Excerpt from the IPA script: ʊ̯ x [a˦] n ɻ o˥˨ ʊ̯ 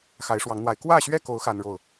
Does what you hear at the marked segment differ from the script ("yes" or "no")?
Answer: no